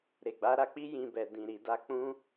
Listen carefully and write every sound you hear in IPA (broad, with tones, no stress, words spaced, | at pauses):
ɾe˨ɡ͡ba˨˦ɾa˧k͡pi˦ jĩ˧bɛ˨ dĩ˨ɾi˨da˧ k͡pũ˦